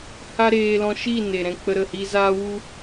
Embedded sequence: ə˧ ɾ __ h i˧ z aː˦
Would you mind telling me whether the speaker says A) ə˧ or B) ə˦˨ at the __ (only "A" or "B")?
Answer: B